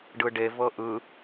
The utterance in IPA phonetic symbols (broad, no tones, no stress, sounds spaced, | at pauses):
ɖ ɯ ɖ e v ɤ ʔ ɯ